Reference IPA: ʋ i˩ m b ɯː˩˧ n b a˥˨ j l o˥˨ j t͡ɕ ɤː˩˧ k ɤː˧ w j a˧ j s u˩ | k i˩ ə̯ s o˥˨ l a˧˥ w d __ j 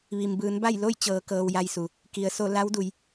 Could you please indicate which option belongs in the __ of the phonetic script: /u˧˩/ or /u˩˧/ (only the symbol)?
u˩˧